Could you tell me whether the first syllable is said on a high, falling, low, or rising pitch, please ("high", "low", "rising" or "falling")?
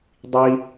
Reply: high